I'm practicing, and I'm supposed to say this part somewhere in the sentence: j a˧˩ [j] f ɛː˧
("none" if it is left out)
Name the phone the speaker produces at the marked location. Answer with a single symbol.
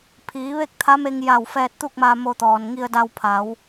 w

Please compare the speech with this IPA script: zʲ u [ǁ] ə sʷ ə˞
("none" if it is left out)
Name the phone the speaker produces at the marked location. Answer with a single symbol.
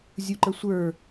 ǃ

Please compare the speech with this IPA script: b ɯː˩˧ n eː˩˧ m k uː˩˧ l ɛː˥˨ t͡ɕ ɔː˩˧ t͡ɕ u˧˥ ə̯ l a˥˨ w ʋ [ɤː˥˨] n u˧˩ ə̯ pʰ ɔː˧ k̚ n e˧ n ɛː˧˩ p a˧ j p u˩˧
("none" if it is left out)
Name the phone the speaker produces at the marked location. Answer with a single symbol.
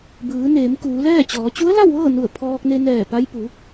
ɤː˥˨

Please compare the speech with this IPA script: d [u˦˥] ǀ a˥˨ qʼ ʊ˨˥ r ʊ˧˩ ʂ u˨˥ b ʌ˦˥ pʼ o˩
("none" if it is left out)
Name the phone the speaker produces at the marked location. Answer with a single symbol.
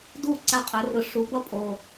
u˥˨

